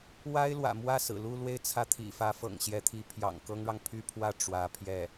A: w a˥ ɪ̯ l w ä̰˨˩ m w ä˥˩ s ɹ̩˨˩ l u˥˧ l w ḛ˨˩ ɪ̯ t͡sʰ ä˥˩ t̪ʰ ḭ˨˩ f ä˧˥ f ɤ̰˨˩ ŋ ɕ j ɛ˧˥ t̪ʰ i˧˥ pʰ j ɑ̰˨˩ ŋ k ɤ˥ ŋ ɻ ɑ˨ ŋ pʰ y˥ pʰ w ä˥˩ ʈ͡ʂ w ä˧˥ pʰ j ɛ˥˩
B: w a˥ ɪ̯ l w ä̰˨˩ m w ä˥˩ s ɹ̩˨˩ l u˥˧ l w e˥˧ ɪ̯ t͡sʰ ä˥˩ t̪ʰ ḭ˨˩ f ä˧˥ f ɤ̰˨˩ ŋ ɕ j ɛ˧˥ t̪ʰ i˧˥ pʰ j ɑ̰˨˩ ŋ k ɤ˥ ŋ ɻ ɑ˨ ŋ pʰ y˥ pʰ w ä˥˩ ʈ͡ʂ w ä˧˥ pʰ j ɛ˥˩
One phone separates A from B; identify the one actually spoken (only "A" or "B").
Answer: B